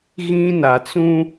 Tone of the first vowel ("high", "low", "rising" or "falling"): high